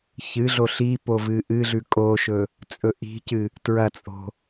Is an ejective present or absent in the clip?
present